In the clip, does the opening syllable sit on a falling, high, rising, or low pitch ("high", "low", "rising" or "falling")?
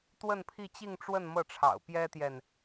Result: falling